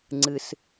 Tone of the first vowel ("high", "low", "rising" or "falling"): high